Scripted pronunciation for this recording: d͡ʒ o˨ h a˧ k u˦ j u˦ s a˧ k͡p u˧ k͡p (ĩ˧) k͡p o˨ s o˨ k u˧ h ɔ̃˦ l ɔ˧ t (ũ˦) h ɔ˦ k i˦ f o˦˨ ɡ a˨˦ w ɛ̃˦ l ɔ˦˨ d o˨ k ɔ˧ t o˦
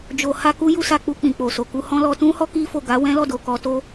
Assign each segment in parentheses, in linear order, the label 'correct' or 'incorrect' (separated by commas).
incorrect, correct